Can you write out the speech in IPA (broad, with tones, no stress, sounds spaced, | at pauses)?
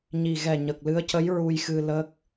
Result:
ɲ i˨˩ ɣ ɛ˨˩ ɲ ə˨˩ k̚ l ɨ˧˥ ə̯ c ə˧˥ j ɹ u˧ j x ɨ˧ l ə˦˥ k̚